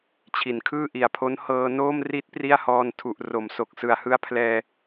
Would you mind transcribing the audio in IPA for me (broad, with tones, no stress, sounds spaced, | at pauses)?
t͡ɕʰ i˩˦ n kʰ ɯː˥˩ ʔ i˨˩ a̯ pʰ o˦˥ n h ɤː˧ n oː˥˩ m r i˦˥ t̚ p r i˥˩ a̯ h ɔː˧ n tʰ u˨˩ ʔ r o˩˦ m s o˨˩ k̚ s ɯ˨˩ a̯ h ɯ˦˥ a̯ pʰ l ɛː˧